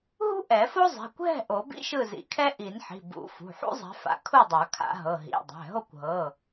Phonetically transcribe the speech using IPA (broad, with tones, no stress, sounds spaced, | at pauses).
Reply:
ɦ ṳ˥ ʔ ɛ˨˩˦ f o˥ zˤ ɛ̤˩˧˩ kʷ ɦ ɛ̤˥˨ ʔ o˨˩˦ b ḭ˥ ʃ ɯ˥˨ z ḭ˨˩˦ kʰ ɛ˥ ʔ i˨˩˦ n ħ i̤˩˧˩ b ṵ˨˩˦ f ṳ˩˧˩ ħ ṵ˥ zˤ ɛ̤˨˦ f a̰˨˦ kʰ u˥˨ dˤ a˨˩˦ kʰ a̰˨˩˦ ɦ ɤ˩˧˩ ɦ ḭ˩˧˩ dˤ ɛ̤˩˧˩ ɦ o˥˨ kʷ ɦ ɤ˩˧˩